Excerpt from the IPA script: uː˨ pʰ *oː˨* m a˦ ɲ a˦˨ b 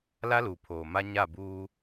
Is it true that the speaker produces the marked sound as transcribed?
yes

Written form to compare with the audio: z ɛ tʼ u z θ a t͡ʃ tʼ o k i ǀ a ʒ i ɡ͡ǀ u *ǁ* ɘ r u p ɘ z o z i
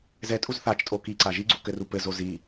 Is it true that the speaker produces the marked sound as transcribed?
no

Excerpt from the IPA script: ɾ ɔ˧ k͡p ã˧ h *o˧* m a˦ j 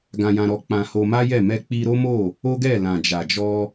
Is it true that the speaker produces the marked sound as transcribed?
yes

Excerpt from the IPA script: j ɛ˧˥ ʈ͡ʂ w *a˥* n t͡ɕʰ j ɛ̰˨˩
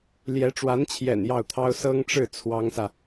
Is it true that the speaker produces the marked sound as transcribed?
no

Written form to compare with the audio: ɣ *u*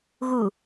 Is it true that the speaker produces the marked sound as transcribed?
yes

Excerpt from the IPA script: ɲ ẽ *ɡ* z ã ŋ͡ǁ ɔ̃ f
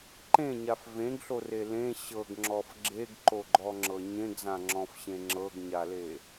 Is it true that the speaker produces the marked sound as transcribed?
yes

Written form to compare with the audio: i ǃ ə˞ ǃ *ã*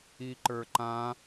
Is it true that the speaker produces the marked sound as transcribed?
yes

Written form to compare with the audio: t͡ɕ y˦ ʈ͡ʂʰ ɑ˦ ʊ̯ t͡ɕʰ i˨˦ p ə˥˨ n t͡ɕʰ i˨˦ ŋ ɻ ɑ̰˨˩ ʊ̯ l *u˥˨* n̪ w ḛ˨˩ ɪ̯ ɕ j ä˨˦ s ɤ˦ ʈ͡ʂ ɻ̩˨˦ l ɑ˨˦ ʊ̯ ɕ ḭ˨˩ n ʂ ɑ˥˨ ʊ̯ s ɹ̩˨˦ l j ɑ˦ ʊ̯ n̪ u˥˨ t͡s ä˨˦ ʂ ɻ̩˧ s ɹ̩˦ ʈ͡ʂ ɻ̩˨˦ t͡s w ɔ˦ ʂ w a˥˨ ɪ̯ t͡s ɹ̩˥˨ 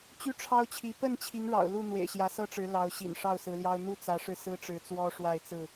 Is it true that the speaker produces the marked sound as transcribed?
yes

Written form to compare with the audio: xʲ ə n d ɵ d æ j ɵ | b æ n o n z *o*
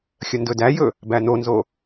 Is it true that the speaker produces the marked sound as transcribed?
yes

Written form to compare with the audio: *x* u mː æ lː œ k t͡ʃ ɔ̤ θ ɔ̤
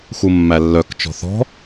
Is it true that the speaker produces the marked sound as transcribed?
yes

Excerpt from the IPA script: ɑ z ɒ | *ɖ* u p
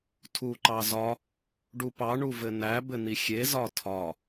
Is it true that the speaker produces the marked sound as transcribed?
yes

